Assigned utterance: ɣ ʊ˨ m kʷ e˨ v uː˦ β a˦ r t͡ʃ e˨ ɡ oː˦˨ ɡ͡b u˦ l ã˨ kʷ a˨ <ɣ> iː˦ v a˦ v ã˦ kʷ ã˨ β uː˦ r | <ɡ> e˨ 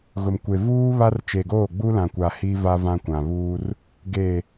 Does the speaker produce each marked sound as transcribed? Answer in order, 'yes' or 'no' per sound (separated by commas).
no, yes